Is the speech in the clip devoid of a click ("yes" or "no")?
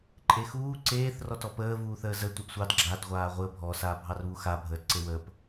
no